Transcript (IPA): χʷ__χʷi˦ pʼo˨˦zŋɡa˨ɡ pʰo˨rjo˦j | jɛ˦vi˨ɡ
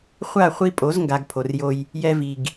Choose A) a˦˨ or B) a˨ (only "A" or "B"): A